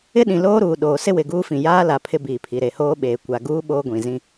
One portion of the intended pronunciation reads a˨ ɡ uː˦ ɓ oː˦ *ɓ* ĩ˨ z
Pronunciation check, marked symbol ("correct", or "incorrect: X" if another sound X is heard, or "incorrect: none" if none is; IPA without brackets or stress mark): incorrect: ɡʷ